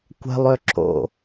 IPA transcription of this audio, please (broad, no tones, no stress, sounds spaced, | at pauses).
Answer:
kʷ ɛ̤ lˠ ø ǁ o̰